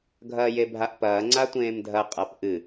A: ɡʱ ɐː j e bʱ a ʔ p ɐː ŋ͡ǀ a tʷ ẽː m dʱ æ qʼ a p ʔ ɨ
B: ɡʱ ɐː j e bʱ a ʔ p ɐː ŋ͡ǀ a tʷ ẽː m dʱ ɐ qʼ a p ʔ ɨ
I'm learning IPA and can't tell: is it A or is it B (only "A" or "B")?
B